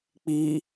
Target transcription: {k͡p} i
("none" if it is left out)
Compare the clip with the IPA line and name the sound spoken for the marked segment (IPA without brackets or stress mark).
k͡p